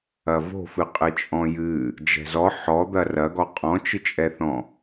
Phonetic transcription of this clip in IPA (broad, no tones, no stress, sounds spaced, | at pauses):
ɐ v o̤ f ɨ qʼ ɨ t͡ʃʼ ɔ̃ j ɨ | d͡ʒ ɛ̤ z ɔ ħ ɔ d̪ ɐ r ɐ ɡ ɔ qʼ ɔ̃ t͡ʃ ɨ t͡ʃʼ ɛ θ ɔ̃